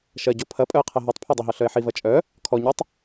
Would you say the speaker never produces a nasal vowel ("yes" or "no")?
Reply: yes